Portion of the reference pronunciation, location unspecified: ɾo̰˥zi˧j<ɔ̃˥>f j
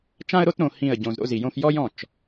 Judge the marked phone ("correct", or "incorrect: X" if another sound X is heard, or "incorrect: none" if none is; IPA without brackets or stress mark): incorrect: õ˥